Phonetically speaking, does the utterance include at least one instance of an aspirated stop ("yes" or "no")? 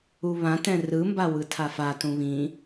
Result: yes